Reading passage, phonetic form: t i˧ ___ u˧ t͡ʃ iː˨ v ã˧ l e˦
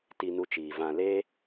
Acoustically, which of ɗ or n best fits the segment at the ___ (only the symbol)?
n